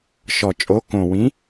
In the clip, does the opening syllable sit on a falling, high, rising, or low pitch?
low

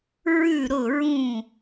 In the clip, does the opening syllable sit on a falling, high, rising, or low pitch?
falling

